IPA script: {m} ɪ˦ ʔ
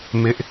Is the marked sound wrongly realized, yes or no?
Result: no